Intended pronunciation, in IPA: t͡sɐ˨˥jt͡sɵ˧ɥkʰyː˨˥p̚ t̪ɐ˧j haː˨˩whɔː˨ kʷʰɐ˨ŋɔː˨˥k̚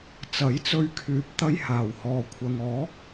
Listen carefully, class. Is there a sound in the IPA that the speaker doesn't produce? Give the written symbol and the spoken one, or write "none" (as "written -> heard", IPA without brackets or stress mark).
none